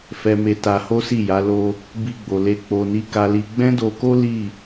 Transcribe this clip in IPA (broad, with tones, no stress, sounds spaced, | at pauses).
f ɛ˧ m e˧ t a˧ h o˦ s i˦˨ j a˨˦ l o˧ | b i˧ ɡ͡b o˨ l e˧ k͡p o˨ n i˨˦ k a˧ l i˧ ɡ͡b ɛ̃˦ d o˧ k o˦ l i˦˨